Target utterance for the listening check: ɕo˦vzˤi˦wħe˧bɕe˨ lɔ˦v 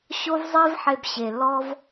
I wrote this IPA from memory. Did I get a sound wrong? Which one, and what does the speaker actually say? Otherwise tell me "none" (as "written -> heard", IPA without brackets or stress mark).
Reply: w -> v